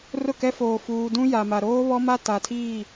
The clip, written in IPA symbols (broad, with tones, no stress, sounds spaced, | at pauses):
r ʊ˦˨ k ɛ˦ f oː˨ f uː˨ d ũ˦ j a˨ m a˨ ɾ oː˦ β ɔ˦ m a˦ t a˨ tʰ iː˦˨